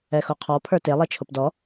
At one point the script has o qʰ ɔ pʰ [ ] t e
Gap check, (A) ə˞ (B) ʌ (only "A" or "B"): A